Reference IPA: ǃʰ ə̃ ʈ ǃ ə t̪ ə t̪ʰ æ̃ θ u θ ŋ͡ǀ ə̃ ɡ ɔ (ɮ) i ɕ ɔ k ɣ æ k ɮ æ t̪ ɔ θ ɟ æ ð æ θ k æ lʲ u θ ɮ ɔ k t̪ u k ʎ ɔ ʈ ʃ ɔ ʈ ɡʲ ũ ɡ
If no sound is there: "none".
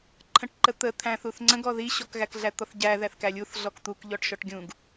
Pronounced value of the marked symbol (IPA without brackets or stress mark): ð